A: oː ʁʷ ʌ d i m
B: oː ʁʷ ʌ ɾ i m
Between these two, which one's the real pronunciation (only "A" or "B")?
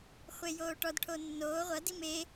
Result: A